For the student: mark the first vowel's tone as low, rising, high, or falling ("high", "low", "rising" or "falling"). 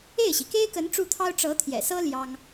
falling